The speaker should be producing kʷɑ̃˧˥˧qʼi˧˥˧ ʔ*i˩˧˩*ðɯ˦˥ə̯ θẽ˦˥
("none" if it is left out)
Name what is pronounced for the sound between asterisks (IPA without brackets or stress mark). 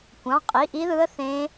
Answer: i˦˥